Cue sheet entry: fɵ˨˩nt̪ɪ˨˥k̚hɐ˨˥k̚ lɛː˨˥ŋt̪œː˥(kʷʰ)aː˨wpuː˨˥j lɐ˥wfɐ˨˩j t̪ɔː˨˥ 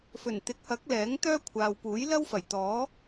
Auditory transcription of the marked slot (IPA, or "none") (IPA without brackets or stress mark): kʷʰ